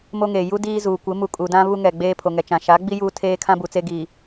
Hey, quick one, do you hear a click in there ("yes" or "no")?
no